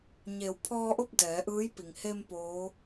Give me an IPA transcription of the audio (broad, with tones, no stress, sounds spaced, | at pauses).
ɲ e˩˧ w pʰ ɔː˧ ʔ o˥˨ p̚ d ɛː˩˧ ʔ ɯː˧˥ j p i˩ ŋ h e˧ m p oː˧˥